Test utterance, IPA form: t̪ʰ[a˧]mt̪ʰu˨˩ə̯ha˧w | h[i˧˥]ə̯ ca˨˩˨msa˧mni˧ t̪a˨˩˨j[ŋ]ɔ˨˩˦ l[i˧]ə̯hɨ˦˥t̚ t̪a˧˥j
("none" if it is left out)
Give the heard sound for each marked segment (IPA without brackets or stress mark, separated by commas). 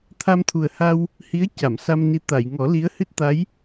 a˧, i˧˥, ŋ, i˧˥